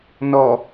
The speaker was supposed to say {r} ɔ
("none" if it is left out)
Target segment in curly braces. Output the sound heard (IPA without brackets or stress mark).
n